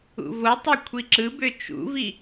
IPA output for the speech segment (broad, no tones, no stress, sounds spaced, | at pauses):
ṵ v o tˤ ɛ kʷʰ i ǁ ɯ b ø t͡ʃ ṵ v i